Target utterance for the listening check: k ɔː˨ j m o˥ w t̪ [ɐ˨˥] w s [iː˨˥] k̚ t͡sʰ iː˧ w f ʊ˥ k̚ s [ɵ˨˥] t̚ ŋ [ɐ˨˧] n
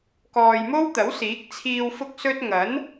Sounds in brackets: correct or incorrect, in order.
correct, correct, incorrect: ɵ˥, incorrect: ɐ˨˥

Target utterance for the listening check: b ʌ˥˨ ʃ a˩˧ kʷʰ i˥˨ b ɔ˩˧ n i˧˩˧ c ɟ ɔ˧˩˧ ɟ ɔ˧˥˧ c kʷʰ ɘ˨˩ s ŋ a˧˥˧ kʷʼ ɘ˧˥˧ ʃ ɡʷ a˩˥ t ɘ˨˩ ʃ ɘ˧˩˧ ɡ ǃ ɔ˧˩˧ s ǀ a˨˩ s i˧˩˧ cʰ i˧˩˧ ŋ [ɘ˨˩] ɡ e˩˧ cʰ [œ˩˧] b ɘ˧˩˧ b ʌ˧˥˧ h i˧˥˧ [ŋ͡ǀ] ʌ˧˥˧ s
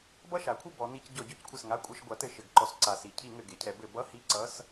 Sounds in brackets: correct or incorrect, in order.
correct, incorrect: ɛ˩˧, incorrect: ǀ

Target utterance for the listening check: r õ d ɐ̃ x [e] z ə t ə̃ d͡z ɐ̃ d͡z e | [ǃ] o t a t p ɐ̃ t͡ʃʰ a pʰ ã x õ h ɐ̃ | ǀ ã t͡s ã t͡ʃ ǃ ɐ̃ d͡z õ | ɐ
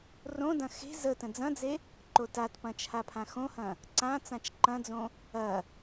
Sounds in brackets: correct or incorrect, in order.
incorrect: e̤, correct

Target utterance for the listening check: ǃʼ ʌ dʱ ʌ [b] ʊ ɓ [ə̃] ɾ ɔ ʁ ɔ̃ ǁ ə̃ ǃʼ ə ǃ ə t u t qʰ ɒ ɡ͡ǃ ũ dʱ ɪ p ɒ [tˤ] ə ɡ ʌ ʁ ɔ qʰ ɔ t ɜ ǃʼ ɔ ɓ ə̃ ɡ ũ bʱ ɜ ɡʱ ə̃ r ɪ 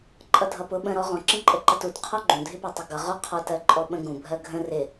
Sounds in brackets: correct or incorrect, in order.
incorrect: p, correct, correct

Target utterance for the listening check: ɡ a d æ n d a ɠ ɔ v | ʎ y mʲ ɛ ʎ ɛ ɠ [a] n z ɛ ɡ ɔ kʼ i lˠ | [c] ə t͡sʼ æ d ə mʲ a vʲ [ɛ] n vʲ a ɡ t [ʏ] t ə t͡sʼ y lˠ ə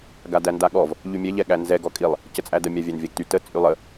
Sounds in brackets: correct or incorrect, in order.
incorrect: æ, correct, incorrect: æ, incorrect: y

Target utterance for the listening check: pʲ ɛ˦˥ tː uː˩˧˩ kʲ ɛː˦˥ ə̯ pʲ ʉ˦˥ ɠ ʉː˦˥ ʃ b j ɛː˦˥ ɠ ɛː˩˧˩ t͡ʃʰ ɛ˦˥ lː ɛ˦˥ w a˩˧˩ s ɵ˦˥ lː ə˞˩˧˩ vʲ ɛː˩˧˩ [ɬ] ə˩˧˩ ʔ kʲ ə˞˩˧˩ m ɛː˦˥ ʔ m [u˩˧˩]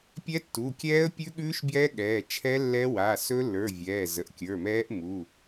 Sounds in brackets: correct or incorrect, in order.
incorrect: z, correct

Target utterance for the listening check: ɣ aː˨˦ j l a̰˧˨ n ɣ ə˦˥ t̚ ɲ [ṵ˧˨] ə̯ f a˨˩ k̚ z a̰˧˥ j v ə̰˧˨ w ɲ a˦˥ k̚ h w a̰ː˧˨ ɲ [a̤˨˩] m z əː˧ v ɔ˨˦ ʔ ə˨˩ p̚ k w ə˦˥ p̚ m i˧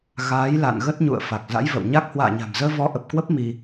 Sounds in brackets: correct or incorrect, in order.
correct, correct

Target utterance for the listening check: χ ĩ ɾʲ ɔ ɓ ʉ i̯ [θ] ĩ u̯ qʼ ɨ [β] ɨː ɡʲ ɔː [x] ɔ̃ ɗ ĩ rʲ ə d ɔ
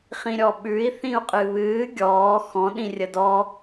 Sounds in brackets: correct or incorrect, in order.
correct, correct, correct

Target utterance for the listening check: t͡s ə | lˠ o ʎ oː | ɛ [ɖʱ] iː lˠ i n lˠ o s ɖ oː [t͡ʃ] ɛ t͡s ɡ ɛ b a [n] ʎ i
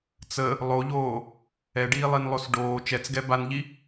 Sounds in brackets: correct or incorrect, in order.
incorrect: ɖ, correct, correct

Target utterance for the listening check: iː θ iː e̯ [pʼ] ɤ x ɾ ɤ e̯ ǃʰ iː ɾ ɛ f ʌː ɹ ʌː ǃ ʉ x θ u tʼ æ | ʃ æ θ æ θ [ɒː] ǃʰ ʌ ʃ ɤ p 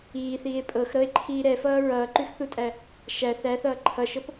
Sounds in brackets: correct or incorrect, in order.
correct, incorrect: ʌː

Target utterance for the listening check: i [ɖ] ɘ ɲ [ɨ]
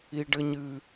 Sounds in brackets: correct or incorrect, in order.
correct, correct

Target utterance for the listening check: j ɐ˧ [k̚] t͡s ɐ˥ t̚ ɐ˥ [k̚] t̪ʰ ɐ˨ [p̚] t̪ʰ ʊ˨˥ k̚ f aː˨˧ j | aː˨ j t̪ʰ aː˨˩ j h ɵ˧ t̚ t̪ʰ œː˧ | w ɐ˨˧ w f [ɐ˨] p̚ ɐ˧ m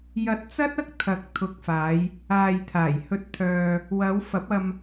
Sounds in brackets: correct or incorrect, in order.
incorrect: t̚, correct, incorrect: k̚, incorrect: ɐ˨˥

